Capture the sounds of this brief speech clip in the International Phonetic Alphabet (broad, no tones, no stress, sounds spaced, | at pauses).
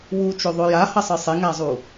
w u t͡ʃ o ðˤ o j a h ʌ sˤ ɯ sˤ e ŋ a zˤ u